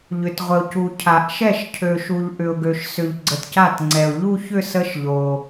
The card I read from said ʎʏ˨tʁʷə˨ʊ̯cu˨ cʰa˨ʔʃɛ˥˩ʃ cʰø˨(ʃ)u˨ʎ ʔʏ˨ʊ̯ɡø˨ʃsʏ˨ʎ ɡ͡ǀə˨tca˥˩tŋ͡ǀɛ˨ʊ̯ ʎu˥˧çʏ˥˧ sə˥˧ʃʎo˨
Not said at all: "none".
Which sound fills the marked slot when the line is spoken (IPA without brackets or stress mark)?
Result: ʃ